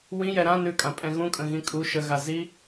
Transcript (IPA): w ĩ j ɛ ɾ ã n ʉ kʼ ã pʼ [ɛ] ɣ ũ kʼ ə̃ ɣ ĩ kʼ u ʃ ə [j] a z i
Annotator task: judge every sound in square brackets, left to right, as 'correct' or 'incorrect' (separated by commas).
incorrect, incorrect